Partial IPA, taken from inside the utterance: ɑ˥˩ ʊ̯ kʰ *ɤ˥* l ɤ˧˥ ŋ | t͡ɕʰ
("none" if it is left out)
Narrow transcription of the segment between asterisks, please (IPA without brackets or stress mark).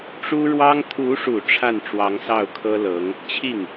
ɤ˥